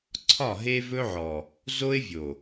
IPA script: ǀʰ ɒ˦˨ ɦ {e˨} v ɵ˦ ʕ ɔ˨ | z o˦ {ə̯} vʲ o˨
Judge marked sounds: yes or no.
no, no

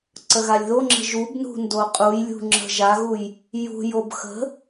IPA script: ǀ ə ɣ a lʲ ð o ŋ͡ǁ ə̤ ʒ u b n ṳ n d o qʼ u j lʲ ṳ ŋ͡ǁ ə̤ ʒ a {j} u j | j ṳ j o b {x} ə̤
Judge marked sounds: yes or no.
no, yes

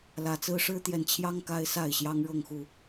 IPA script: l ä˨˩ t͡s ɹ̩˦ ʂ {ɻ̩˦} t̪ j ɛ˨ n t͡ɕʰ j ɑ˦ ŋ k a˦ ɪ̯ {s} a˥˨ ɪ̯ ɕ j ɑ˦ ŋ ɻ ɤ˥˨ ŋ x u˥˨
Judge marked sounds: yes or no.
yes, yes

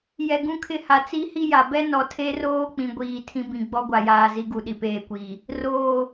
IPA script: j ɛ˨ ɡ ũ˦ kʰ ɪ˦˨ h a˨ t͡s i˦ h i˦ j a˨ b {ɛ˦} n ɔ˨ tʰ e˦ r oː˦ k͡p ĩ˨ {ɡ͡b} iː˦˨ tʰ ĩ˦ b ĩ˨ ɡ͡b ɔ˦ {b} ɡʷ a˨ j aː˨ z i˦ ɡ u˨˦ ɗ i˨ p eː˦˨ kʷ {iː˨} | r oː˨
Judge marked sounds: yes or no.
yes, no, no, yes

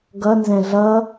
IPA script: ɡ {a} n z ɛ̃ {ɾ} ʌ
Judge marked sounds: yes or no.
no, no

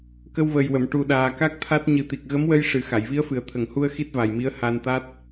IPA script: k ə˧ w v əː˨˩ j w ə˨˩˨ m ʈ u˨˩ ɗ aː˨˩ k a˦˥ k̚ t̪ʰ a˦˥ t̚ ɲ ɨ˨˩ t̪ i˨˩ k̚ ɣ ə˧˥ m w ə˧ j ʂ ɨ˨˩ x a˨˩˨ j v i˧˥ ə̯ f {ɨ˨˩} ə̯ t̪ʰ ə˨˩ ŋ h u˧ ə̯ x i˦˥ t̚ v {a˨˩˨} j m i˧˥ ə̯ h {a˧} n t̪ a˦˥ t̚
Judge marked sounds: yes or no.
yes, no, yes

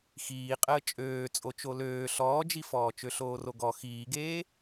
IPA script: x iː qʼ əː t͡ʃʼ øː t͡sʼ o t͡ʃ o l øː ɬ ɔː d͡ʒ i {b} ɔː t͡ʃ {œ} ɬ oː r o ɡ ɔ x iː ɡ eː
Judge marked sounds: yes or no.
no, no

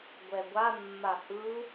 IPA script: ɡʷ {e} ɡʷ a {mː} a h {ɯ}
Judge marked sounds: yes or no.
no, yes, yes

